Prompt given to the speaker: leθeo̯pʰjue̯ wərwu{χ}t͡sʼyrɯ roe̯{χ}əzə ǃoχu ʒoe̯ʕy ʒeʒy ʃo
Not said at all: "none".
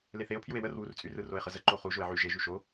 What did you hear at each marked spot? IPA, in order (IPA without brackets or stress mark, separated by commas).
r, χ